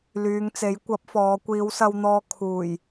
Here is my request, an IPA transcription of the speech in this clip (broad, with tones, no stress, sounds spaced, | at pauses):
l yː˨˧ ŋ t͡s e˨˥ j kʷ ɐ˨˥ p̚ f ɔː˨˧ kʷ iː˨˧ w s ɐ˧ w n̪ ɔː˧ kʰ uː˨˩ j